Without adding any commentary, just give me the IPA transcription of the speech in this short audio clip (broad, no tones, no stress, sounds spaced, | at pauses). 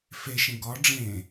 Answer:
f e ʃ ẽ ɡ ɒ ɖ͡ʐ ẽ